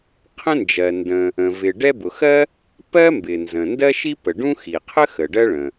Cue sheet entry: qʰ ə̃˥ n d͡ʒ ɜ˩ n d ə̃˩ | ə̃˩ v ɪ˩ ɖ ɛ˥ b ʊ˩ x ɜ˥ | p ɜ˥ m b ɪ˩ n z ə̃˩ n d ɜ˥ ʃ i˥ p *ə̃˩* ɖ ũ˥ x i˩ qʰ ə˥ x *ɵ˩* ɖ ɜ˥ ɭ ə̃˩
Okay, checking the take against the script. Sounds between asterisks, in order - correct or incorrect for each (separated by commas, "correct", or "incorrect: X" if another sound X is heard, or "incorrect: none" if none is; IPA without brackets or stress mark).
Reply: incorrect: ə˩, incorrect: ə˩